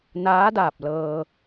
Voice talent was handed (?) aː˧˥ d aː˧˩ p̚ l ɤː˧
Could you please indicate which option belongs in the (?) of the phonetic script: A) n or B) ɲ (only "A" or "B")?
A